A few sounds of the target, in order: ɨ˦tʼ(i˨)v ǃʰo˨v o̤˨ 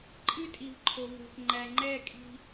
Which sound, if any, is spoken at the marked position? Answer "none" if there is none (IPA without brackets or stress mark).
i˨